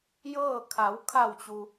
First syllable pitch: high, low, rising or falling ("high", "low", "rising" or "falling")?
falling